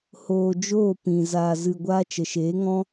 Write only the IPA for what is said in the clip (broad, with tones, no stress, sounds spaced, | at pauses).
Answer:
h oː˧ d͡ʒ oː˦˨ p ĩ˨ z aː˧ z ɨ˧ ɡʷ aː˦ t͡ʃ ə˨ ʃ eː˨˦ ŋ ɔ̃˦